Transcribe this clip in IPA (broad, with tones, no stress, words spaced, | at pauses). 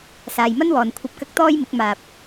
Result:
saː˨jmɐ˥nwɔː˨n kʷʰɐ˨p̚kɐ˧k̚ t̪ɔː˥jmɪ˨˥k̚ maː˨p̚